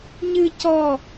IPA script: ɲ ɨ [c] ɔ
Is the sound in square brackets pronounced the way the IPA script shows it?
yes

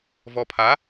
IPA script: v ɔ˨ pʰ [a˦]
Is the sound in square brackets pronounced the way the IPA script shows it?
no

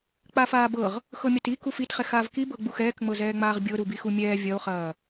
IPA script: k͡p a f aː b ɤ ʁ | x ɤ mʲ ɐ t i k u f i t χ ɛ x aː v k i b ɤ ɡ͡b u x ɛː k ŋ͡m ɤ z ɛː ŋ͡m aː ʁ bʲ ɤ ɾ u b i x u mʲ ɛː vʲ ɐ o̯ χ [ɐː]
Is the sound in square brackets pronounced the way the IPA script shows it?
yes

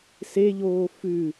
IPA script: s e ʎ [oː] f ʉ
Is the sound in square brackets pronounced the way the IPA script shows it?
yes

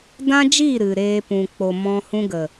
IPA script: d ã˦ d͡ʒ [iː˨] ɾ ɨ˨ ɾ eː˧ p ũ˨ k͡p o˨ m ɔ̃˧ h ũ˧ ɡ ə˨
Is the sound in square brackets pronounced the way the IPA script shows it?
no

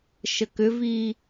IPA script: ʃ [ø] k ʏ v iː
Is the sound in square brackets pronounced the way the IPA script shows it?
no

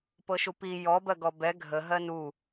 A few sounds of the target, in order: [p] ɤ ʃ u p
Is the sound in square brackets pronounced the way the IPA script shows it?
yes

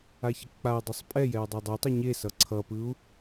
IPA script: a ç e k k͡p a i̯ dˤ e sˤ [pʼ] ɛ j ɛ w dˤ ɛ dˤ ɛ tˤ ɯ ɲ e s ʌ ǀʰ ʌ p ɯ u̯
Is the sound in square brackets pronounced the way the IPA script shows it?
yes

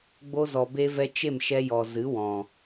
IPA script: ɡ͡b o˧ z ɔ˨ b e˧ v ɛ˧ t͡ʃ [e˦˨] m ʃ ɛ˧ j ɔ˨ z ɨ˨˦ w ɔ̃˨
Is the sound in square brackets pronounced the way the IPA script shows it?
yes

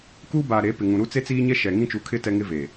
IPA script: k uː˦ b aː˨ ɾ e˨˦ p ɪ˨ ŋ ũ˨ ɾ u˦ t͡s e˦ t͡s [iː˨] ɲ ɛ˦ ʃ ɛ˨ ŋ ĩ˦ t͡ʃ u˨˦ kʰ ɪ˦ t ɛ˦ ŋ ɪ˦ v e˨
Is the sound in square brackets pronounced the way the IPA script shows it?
no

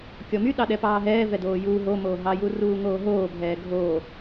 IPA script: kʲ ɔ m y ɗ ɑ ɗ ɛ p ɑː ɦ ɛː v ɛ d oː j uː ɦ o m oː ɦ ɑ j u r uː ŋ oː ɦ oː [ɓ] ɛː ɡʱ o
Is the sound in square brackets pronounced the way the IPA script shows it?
no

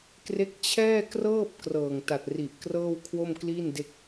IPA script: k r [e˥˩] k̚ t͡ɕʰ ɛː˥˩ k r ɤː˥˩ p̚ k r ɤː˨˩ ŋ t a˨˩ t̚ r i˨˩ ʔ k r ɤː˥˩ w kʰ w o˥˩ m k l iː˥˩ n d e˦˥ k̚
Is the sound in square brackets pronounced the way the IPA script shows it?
no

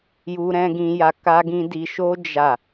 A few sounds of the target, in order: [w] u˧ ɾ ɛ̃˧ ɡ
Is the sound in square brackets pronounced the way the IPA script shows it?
no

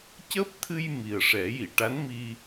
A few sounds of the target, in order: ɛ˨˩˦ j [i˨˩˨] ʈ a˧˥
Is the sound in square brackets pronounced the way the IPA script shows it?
yes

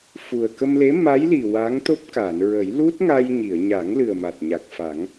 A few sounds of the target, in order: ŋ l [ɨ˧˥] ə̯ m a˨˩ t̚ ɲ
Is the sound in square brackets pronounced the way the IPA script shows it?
no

